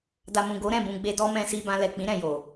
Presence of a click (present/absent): absent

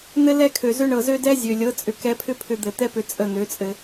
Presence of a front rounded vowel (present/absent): present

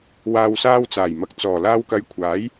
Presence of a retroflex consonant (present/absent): absent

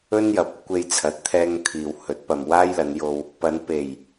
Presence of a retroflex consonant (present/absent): absent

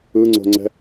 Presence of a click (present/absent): present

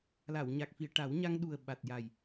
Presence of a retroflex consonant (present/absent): present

